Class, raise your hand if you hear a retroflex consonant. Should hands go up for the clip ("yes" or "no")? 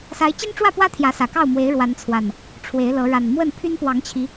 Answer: yes